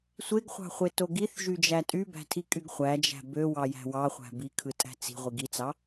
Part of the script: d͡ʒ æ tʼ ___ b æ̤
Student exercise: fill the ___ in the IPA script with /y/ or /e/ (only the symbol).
y